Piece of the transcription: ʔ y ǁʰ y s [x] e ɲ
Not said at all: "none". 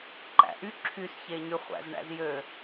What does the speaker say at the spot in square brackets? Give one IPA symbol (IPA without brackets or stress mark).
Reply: ç